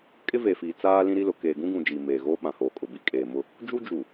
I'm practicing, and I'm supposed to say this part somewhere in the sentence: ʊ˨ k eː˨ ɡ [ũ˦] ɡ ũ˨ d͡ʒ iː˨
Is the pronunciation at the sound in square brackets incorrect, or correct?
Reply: correct